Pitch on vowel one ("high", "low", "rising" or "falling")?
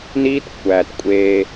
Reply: high